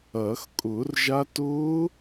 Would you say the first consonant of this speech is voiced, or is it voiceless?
voiceless